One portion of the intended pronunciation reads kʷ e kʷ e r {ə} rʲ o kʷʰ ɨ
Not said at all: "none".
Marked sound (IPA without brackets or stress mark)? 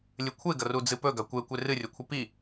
ɨ